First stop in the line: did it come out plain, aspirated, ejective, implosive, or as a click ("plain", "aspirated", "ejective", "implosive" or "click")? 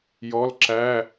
click